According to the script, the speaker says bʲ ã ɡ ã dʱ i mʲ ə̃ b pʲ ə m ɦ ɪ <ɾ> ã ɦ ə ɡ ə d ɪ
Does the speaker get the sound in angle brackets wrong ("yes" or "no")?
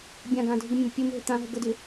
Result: yes